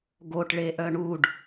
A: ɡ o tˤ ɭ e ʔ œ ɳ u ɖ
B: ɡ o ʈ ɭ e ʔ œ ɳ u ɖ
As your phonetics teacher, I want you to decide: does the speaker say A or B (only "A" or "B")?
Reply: B